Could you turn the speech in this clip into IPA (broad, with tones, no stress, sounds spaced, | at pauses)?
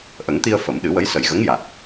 ʔ ə˨˩˦ ŋ t̪ i˧ ə̯ f ə˨˩˦ m ɗ ɨ˨˩˦ w ə˧˥ j s ə˨˩ j ɣ ə˧˥ ŋ j a˨˩ t̚